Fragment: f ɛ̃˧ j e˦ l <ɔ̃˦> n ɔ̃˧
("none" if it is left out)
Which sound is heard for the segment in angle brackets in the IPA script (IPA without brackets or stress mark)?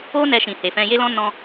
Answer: ɔ̃˦